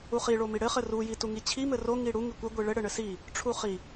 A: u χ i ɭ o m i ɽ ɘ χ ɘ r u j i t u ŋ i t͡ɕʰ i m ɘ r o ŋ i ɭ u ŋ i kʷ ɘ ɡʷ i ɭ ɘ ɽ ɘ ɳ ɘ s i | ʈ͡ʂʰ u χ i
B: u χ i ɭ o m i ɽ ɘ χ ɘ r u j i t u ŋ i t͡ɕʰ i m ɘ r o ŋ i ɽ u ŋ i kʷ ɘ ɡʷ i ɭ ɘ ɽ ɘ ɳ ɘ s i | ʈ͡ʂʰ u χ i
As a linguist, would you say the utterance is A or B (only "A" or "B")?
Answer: B